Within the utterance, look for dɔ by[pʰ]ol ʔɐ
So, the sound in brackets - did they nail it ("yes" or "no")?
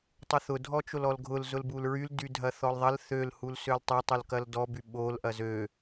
no